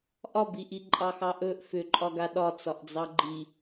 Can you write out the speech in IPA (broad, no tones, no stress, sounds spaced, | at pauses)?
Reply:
ʔ ɒ b i ʔ i ǃʼ ɑ x ɑ ʔ ɵ ʔ f ʏ ǃʼ ɒ ɡ a ɗ ɒ t͡s ɒ ʔ d͡z ɑ ɡ͡ǃ i